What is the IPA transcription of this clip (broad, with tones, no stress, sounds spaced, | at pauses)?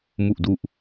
m u˨˩ ʔ d u˨˩ ʔ